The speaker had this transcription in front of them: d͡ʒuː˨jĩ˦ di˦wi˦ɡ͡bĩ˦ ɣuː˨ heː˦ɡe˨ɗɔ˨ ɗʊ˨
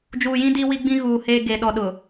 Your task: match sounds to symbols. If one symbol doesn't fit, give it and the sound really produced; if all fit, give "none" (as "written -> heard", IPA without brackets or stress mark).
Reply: none